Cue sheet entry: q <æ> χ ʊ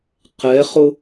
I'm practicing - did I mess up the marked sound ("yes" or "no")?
yes